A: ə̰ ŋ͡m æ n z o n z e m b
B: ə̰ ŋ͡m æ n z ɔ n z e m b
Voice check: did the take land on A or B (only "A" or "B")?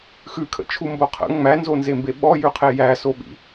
A